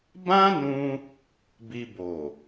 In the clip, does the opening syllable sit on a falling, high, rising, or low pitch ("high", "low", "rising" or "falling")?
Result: high